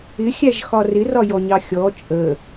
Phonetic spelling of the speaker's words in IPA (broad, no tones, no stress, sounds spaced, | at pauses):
ɪ xʲ æ ʒ x ɒ r ɪ r ɒ j ɔ ɲ ɑ xʲ ɔ t͡ʃʼ ə